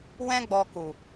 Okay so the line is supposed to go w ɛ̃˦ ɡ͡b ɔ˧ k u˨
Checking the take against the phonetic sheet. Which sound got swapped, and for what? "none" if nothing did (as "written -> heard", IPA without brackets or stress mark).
none